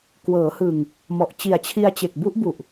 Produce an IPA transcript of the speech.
k w ɤː˩˦ h ɯ˨˩ ŋ | m ɔ˨˩ ʔ t͡ɕ i˨˩ a̯ t͡ɕʰ i˧ a̯ t͡ɕ e˨˩ k̚ b u˦˥ ʔ b u˨˩ ʔ

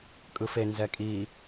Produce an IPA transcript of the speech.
kʼ ɯ f e n z ɛ kʼ i

